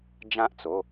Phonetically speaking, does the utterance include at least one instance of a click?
no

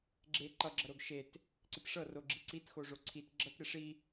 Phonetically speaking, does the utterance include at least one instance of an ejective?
no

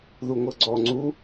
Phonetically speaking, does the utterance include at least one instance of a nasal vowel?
no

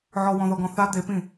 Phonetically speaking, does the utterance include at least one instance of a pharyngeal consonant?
yes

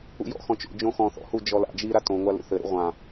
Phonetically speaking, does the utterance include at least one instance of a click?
no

